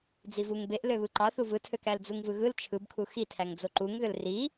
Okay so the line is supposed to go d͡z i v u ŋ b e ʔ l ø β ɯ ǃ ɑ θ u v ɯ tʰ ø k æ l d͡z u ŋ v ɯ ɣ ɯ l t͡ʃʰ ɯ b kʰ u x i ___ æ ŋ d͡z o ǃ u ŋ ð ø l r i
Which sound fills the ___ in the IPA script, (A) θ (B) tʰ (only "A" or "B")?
B